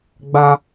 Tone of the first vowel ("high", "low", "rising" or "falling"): high